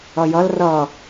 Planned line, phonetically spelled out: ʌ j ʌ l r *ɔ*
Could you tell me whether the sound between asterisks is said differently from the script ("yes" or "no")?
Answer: yes